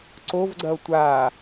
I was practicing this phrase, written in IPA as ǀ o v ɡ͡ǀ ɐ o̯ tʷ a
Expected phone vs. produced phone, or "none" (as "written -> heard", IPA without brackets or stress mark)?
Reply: none